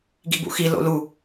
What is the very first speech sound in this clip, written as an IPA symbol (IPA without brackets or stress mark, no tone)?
ɡ